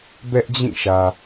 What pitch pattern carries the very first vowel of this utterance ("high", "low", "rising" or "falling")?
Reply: high